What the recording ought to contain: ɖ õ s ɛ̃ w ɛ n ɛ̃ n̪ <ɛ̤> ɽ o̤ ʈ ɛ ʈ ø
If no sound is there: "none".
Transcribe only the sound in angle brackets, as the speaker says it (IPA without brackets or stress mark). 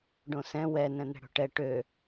ɛ̤